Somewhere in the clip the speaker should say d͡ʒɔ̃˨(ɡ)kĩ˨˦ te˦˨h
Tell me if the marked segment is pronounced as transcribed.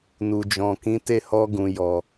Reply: no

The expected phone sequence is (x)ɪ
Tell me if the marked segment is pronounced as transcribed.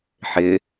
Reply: no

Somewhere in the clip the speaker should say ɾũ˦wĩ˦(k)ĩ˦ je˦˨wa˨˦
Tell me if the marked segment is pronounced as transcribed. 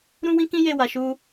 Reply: yes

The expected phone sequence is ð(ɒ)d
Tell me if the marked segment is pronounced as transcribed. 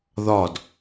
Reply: yes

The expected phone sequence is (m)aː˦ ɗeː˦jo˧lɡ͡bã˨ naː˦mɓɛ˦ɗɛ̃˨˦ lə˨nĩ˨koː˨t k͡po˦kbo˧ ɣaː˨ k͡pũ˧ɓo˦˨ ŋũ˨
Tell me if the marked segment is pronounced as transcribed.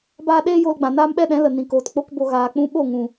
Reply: no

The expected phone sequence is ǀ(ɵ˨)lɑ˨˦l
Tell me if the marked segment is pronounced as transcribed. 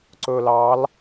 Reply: yes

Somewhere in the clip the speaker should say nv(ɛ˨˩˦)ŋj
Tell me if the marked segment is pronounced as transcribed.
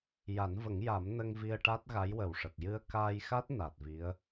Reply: no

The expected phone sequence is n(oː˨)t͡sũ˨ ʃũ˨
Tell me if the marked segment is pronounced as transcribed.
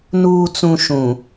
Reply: no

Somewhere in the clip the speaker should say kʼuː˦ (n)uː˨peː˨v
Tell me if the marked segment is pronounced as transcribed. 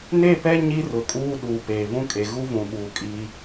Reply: no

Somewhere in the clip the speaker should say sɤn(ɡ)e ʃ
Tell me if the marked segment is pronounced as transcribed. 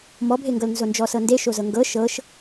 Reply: no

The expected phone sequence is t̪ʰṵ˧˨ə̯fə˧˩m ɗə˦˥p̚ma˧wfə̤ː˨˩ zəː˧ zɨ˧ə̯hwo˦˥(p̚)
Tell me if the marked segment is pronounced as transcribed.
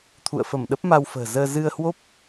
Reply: yes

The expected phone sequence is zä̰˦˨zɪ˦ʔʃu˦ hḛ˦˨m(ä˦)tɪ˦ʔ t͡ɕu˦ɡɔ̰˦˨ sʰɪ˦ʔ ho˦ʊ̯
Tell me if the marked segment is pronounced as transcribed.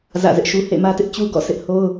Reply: yes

